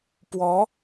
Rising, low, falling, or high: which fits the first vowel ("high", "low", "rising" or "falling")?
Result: rising